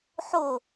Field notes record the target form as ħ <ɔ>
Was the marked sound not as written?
yes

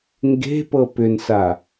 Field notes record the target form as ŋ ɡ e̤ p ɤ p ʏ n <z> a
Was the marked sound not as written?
yes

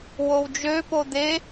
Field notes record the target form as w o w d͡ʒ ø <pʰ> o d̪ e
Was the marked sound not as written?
yes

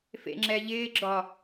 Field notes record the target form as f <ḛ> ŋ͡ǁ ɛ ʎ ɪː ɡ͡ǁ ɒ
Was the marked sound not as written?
no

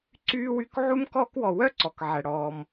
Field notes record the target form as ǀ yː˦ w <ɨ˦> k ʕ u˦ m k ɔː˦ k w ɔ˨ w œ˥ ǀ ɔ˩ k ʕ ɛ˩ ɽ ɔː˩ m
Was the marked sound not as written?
yes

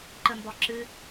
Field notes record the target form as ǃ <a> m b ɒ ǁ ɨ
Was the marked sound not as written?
yes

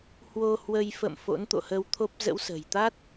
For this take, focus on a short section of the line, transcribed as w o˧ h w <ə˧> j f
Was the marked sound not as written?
no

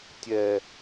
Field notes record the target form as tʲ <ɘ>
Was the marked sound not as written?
yes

